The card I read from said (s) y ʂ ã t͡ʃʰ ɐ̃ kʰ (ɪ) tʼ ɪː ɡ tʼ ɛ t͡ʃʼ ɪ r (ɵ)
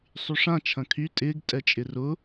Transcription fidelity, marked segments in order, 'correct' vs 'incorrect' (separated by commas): incorrect, incorrect, incorrect